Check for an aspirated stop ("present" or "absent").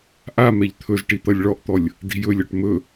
present